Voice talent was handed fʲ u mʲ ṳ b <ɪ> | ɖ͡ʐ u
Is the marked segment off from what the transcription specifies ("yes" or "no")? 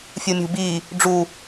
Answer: yes